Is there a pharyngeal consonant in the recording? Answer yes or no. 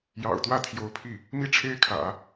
no